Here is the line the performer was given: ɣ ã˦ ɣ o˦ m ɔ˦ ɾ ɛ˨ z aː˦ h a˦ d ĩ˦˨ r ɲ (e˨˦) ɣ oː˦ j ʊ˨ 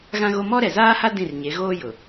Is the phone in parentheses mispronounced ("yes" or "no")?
no